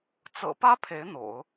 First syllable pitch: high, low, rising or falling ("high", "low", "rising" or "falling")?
low